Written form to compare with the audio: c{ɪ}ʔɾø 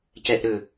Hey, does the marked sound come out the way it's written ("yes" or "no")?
no